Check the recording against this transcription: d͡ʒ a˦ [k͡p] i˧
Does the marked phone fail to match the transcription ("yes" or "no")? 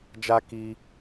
yes